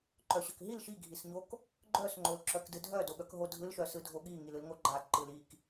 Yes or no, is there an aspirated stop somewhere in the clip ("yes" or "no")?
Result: no